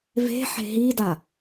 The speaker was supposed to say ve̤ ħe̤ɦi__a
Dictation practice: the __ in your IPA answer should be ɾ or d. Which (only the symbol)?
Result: d